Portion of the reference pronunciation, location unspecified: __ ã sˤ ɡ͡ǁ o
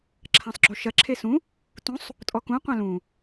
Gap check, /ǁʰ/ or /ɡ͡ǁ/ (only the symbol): ǁʰ